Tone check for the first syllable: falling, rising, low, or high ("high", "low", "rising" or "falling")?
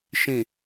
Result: low